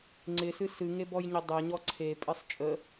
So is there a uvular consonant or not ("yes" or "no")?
no